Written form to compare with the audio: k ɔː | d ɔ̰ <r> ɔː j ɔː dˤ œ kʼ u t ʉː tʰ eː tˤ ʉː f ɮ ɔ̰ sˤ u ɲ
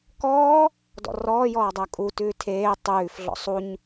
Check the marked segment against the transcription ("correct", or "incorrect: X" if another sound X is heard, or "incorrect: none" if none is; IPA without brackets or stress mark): correct